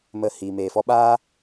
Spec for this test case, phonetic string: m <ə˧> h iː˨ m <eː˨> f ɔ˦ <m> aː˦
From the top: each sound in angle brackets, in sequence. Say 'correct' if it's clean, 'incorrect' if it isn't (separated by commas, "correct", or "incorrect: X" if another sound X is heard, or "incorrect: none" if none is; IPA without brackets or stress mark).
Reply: correct, correct, incorrect: ɓ